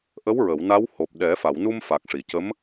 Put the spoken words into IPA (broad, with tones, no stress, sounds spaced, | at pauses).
ʔ ə˧˥ w ɹ ə˨˩˨ w n a˧˥ w h o˨˩ p̚ ɗ ɛ˨˩˦ f a˨˩˨ w n u˧ m f a˨˩ k̚ ʂ i˨˩˨ c ə˧˥ m